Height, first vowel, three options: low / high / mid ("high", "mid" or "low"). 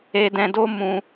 mid